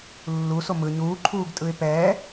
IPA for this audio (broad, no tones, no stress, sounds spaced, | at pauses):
lː u s o m ɯ ɲ uː ǃʰ uː ɡ tʼ ɯ ɪ̯ p ɛː